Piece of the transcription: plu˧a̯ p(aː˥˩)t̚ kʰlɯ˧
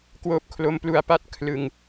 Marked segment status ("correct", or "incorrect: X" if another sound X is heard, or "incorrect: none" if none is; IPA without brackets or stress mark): incorrect: a˥˩